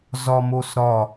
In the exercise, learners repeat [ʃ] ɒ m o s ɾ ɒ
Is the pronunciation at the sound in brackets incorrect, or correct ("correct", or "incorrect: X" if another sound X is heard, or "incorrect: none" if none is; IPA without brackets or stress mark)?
incorrect: z